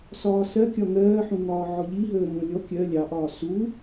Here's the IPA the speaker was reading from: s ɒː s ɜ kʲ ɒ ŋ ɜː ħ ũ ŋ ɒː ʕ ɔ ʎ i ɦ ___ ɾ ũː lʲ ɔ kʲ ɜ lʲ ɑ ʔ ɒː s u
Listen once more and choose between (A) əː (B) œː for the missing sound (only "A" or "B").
A